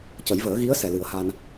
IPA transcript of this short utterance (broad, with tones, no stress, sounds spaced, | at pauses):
c ə˨˩˦ j v əː˨˩˦ ɣ i˧˥ ə̯ s ɛ˨˩ l ɨ˨˩˦ ə̯ h a˧ n